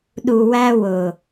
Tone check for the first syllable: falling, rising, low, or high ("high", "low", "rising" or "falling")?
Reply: low